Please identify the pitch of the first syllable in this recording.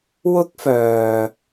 high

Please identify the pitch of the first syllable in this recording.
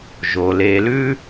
low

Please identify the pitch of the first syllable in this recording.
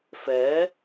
rising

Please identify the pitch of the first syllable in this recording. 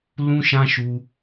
high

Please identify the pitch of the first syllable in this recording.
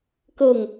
falling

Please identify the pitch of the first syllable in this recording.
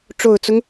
low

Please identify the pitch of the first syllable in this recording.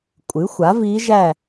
rising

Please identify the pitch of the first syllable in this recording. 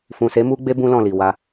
low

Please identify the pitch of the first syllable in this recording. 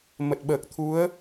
low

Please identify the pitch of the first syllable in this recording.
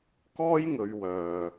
high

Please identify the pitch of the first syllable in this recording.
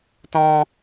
high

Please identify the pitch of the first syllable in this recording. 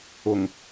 low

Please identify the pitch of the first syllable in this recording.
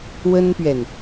high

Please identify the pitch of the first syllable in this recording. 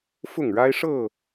falling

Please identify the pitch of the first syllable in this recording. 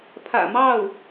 low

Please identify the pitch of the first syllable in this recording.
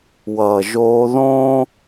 low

